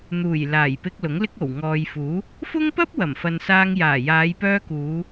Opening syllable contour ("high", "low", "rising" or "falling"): low